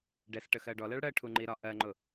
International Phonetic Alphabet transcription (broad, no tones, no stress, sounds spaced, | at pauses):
ɖ ɛ s ʈ ə x ɜ ɖ ɔ l ɜ ɭ ɽ ɜ ʈʰ u ŋ͡ǃ i ɾ ɒ ʔ ɜ ŋ͡ǃ ʊ